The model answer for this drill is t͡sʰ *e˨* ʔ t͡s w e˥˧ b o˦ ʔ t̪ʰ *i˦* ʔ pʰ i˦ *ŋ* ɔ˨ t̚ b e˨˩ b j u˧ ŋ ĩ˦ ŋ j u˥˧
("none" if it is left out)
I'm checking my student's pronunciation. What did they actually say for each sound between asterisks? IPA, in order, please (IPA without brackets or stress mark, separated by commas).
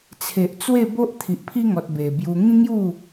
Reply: e˨, i˨, ŋ